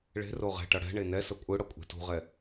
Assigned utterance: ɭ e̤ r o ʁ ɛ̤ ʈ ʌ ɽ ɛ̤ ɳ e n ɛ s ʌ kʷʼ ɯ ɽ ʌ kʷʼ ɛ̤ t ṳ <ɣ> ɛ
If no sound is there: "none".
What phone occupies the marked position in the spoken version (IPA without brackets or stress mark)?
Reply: ʁ